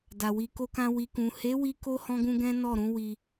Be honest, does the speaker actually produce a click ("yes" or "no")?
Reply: no